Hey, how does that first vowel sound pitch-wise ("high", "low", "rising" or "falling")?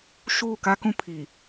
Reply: falling